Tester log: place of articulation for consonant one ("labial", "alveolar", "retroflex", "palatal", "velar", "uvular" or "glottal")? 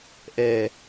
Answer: glottal